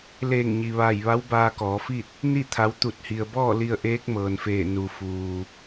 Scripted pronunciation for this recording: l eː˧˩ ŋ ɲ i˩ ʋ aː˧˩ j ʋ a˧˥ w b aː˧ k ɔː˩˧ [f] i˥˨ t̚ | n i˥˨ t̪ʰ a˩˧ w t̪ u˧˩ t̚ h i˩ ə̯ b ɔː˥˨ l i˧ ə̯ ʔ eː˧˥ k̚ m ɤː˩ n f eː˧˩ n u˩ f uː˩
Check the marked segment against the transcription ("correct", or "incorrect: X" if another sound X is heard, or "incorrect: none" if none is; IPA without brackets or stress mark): correct